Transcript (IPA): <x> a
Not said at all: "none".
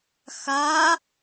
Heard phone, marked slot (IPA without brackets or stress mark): x